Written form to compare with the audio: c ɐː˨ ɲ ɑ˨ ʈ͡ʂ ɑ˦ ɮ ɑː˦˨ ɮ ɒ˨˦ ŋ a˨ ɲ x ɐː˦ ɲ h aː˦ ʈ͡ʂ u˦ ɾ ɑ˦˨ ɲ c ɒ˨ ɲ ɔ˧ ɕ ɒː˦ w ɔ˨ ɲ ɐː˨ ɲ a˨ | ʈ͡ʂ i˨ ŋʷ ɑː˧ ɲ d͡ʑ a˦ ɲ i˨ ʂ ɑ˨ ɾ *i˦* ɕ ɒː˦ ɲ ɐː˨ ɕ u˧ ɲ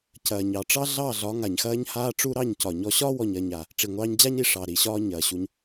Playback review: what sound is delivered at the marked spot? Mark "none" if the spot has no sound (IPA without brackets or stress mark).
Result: i˨